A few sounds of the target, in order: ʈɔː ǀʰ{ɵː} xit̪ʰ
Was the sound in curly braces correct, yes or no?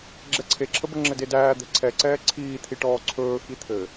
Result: yes